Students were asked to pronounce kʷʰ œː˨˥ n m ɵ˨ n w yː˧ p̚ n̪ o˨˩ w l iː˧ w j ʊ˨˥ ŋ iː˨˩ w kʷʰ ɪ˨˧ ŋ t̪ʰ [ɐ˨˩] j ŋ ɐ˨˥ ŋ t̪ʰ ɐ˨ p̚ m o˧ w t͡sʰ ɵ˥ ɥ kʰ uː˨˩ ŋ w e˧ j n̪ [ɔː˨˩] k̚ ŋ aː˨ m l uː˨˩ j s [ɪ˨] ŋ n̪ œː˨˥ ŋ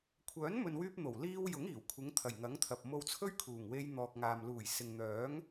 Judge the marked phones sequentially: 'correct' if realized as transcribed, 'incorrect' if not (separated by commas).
correct, incorrect, correct